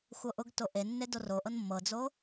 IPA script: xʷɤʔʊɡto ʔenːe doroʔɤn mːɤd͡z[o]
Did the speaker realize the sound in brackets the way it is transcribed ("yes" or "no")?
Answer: yes